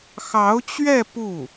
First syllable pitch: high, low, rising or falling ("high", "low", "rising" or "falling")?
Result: rising